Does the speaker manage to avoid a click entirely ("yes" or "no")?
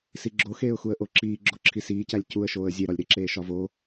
no